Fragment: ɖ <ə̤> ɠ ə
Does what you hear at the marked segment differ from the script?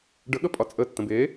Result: yes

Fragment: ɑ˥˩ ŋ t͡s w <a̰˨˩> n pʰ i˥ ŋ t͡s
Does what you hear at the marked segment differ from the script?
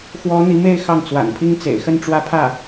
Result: no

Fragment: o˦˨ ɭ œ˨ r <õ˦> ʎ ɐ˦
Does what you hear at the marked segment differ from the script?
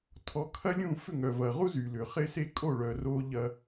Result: yes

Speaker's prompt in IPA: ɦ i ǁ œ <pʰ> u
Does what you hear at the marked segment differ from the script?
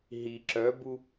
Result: yes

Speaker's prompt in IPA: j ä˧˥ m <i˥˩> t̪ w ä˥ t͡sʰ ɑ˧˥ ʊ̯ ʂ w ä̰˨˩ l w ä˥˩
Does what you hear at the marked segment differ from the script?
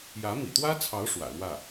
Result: yes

